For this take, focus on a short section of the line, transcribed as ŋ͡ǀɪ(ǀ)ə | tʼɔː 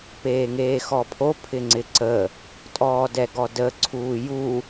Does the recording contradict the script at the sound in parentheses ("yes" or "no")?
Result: no